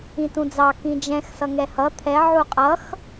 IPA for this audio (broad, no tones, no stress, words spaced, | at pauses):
ĩtũd͡zɑ kĩd͡ʒɛ̃x sʌŋɛhʌ t̪ʰɛ ʕuqʼʌx